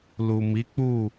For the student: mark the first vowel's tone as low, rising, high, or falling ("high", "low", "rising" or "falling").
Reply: low